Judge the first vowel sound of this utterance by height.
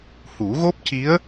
high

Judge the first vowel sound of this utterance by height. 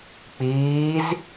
high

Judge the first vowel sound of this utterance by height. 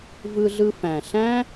high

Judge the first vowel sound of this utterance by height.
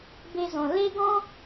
mid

